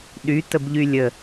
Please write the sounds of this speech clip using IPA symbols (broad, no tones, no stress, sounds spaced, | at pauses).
ɗ y t ə b ʎ y lʲ ə